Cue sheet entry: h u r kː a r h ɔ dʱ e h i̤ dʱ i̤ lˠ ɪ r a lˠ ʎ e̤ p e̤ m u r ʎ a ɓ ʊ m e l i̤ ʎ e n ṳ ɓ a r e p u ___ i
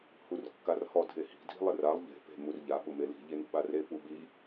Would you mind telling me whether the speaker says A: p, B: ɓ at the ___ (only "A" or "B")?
B